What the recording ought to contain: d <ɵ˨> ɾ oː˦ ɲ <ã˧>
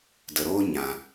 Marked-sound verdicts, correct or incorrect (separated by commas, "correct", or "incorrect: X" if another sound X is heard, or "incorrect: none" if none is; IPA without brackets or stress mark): incorrect: ə˨, correct